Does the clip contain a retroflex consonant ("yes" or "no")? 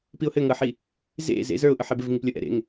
no